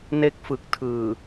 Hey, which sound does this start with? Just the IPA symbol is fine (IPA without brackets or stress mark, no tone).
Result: n